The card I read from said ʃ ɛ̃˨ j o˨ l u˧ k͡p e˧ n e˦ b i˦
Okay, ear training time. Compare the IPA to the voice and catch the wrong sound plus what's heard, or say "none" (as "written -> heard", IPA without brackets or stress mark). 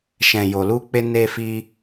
b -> f